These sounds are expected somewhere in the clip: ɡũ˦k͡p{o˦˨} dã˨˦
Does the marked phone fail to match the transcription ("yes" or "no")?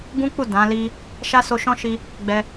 yes